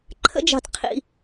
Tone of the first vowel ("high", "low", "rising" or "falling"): high